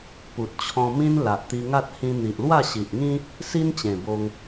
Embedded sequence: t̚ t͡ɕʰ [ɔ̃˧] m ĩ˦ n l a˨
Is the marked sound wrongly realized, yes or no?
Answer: no